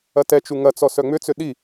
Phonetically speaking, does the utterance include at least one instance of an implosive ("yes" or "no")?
yes